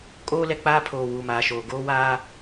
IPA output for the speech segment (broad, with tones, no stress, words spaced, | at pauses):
kʼoː˦lɛ˨k͡paː˦ pʰoː˨wuː˨maː˨ʃoː˨ ɡoː˦waː˦